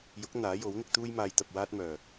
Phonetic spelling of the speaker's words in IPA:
jʊ˨˥k̚ n̪aː˨˥jo˨˥wn̪ɪ˧k̚ t̪uː˥jmaː˧j t̪ɐ˧p̚waː˥t̚mœː˨

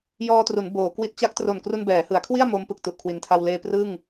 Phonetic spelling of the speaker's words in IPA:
jɔː˧tru˩˦n boː˩˦kwi˦˥t̚ t͡ɕa˦˥k̚tro˨˩n kru˧nbɛː˩˦hɯ˩˦a̯kʰwi˥˩a̯ mo˦˥mpɯ˨˩k̚ tu˨˩ʔkʰwi˩˦ntʰa˧w leː˧prɯ˥˩ŋ

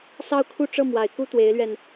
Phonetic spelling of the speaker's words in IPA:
sɑ˥˧ʊ̯kʰu˥˧ ʈ͡ʂɤ˥˩mwa˨˩ɪ̯ ku˥t̪we˧˥ɪ̯lɥɛ˧n

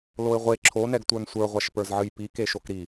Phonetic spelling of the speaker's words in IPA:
loɪ̯ʁʷe ǁʰonɛɡtʷə˞n sʷə˞ʁʷaʃpə˞zʕɨj pikeʃok ɾi

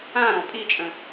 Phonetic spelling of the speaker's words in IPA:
ãɾɔ̃ pʼit͡ʃʼə̃

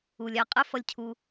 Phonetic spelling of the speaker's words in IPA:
u˨ lʲæ˦˨ qʼɛ˦ fʌ˦˨lʲcʰu˦

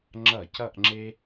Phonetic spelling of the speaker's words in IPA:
ŋ͡ǁʌ˧˩˧c ʌ˥˧ʔŋ͡ǁe˥

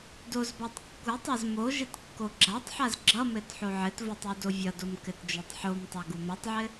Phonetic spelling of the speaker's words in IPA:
dozbatˤ kːutˤaz mo ʒɘtkːoɡ͡ǁatˤħaz ɡ͡ǁʌmɘt ħoʕɘtvotˤ udovʲʌdom kɘtd͡ʒotˤħomtˤa ɡumʌtˤʕɘ

